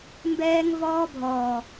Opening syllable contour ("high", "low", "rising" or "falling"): high